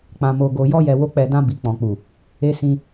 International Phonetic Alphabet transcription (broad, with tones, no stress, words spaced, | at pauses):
k͡pã˨mo˨ɡo˨jɔ˧ jɛ˨wo˧k͡pɛ˨dã˧ bi˨k͡pɔ̃˨k͡pu˨ | e˧sĩ˧